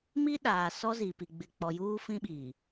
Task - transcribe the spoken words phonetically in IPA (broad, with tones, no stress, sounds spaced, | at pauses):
m i˦ ɗ aː˨ s ɔ˦ z i˨ p i˨ ɡ͡b ɪ˨ k͡p ɔ˨ j uː˦ f ĩ˦ ɓ iː˨